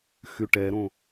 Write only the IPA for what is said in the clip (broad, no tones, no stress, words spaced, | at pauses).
xyʈɛɾõ